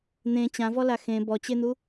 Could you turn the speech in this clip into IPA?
n̪ ẽ t͡ɕ ã v ɔ l a x ẽ b ɔ t͡ɕ e n̪ u

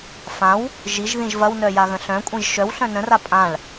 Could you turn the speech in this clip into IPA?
f ã w | ʒ i ʒ ð ĩ ʒ v ɐ w n œ j a ɣ ə̃ ɬ œ̃ kʷʼ ĩ ʒ ʃ œ w ɬ œ̃ n ə̃ r a pʼ ã ɭ

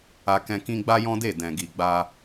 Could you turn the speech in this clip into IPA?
a˧ k ɛ̃˧ k ĩ˦ ɡ͡b a˦ j ɔ̃˦ d e˦˨ d ɛ̃˨ ɡ i˨ ɡ͡b a˧

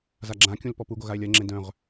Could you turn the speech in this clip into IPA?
z a ɡ͡ǁ ã kʲ ũ l p ɔ p u ɡ o ɣ a e̯ lʲ ɜ ŋ͡ǁ ẽ d œ̃ ʁ

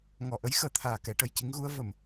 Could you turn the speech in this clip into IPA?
ŋ ɔ˨˩ ʔ ə˧˥ j x əː˨˩ t̪ʰ aː˨˩ k ɛ˨˩˦ ʈ ə˨˩ j c i˧˥ ŋ ɣ u˧˥ ə̯ v ə˨˩˨ m

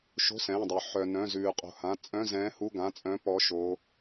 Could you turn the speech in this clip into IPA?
ʃ o̤˧˥˧ s ɛ̃ː˩˧˩ dˤ œ˩ ħ œ˩ n œ̃˩˧˩ z ʉː˩ qʼ o̤˩ h ã˩˧˩ t͡sʼ œ̃˧˥˧ z ɛ̃ː˨˥ h u˧˥˧ ɡ ã˩˧˩ t͡sʼ œ̃˨˥ p ɔ˨˥ ʃ o˩˧

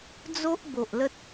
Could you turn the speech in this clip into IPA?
d͡z o˦ ʔ b o˨ ʔ l ə˦ t̚

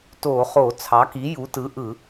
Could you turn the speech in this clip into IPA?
t o˧˩˧ χ o˧˩˧ t͡sʰ ɑ˩˥ k i˩˥ j u˩˥ t ɯ˩˥ ʔ ɯ˧˩˧

